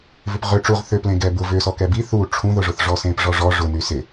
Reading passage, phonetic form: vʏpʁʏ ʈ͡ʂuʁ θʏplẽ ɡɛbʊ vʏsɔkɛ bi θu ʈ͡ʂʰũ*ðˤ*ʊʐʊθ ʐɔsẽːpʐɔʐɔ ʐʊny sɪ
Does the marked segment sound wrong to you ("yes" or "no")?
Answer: yes